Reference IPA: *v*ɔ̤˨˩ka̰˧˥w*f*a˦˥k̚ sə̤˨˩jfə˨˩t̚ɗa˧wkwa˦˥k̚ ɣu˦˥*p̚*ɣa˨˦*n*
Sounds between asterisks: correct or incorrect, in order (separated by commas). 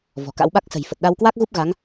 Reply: correct, incorrect, correct, incorrect